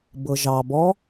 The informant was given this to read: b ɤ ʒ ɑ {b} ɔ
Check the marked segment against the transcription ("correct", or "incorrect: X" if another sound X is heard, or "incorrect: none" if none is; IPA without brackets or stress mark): correct